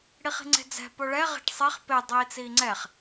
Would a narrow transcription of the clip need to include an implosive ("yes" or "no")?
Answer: no